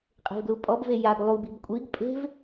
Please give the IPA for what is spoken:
qʼe̤vɡlupʼɔbve jaɡ lˠubi̤b kʷʼiɡ pʼe̤v

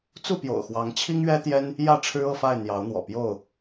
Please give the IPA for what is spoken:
t͡su˥˨pjo̰˨˩ʊ̯xwɑ˨˦ŋ t͡ɕʰi˦ŋɥɛ˦t̪jɛ˦n | jä˥˨ʈ͡ʂʰɻ̩˦ɤ˥˨fa˥˨ɪ̯ n̪jɑ˨˦ʊ̯n̪wɔ̰˨˩pjo˥˨ʊ̯

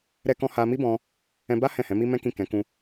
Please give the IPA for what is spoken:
ɾɛ˦kɔ̃˦ ha˧mi˦bɔ̃˧ | ɛ̃˧ba˦ hɛ̃˦˨hɛ̃˨˦mi˦ mɛ̃˦kĩ˦˨ kɛ̃˨˦ kũ˧

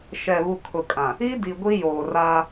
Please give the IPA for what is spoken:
ʃɛ˨βu˨ kʰʊ˨kʼã˨ | i˦di˨ ɡʷi˦joː˨raː˦

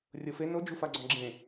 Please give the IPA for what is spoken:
rʲɤfe nod͡ʒufaɡ͡ǀɔ̃ ɡ͡ǁẽ

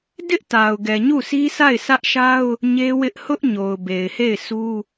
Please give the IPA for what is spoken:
dɪ˦ʔta˨ʊ̯ ɡɛ˨ɲu˦˨sʰi˦sa˦˨ɪ̯ sʰä˦ʔʃa˦ʊ̯ | ɲe˦wɪ˦ʔ hʊ˦ʔ ɲo˨ʊ̯be˨ɪ̯he˦˨ɪ̯ su˦

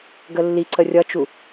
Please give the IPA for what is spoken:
ɡəlːiǀə rʲʌt͡ʃu

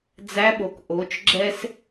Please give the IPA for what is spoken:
d͡zæ˧˥ɓo˩k ʔo˩˧t͡ʃ ɡ͡ǁɛ˥s

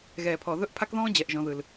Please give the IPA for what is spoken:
ɣɛː˩pʰɔ˩ðɵ˧˥ʔ pʰa˥kðɔ̃ː˥d͡ʑɛ˩˧ʔʒɔ̃˩˧ ðɯ˩l

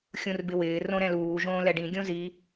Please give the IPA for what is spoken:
xʲũrbɪwɪː rõɾɛ̃luː ʒõːlɛɖĩ ɡʲõzi

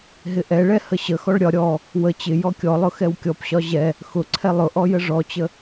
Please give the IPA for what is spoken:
ɦɪʔɛɭɛ həɕəxɔɭ ɾʲɒ ɾʲɔ | wə t͡ɕɪ jɔkʲɔlˠʊ xɛwkʲɔpɕɒ ʑɛ | xʊǀʰɛ lˠʊʔɔ jəʐɔt͡ɕə

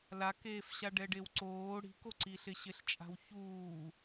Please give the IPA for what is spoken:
lakeːfɕa ɖɛɖewǀoː ɽi̤koǀiɬɪ ɕɪɬt͡ʃʼa̤wçuː

